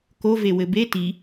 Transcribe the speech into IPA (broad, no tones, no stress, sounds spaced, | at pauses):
k o v e w ɘ b e t i